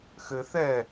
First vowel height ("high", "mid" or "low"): mid